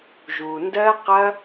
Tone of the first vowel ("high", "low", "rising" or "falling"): low